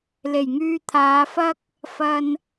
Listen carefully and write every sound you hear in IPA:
l e˨˩ j ŋ yː˧ t̪ʰ aː˨˧ f ɐ˥ k̚ | f ɐ˧ n

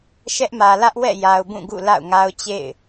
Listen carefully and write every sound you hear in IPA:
ʃ ɛ˦ ʔ m ä˨ l ä˦ ʔ w ɛ̰˦˨ j a˨ ʊ̯ b ũ˦˨ ɡ ṵ˦˨ l a̰˦˨ ʊ̯ ŋ a˦ ʊ̯ t͡ɕ ḛ˦˨ ɪ̯

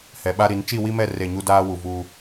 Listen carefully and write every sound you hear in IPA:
h ɛ˨ ɓ a˦ ɾ i˨˦ n t͡ʃ i˦˨ w i˦ m ɛ˦˨ r e˦˨ ɲ u˦ d aː˦ w u˨ v uː˦

